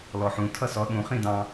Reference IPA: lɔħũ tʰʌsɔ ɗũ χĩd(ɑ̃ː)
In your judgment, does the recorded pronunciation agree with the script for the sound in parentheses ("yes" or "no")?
no